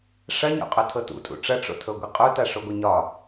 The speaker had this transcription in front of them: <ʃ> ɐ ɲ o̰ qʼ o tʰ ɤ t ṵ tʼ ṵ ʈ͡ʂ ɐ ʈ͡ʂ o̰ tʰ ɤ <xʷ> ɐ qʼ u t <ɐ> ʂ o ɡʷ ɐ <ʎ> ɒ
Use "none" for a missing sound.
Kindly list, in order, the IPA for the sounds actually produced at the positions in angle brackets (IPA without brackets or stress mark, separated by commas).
ʂ, ɡʷ, a, ɲ